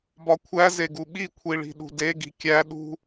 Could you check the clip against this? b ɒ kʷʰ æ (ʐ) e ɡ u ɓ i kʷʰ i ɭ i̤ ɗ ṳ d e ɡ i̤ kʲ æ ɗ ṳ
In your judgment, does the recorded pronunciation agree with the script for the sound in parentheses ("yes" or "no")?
no